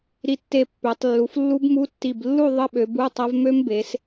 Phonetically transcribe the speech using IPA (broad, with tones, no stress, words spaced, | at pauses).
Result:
ɾi˧˩tːe˧˩ pːø˩˧tˤ lːu˩˧flːu˦˥bmu˧˥˧ tːi˧˩blːu˥˧ ðˤə˧˥˧ɓø˩˧ bu˧˥˧tˤɐ˦˥v mø˦˥mbe˩˧s